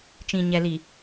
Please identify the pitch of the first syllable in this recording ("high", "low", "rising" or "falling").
low